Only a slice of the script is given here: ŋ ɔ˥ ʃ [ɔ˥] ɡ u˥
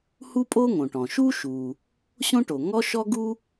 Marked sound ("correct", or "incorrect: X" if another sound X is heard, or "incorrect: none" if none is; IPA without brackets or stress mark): correct